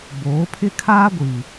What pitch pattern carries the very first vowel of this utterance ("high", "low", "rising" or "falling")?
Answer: rising